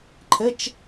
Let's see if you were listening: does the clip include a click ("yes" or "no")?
yes